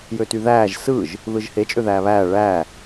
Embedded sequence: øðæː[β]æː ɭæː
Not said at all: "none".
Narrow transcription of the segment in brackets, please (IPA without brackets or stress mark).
β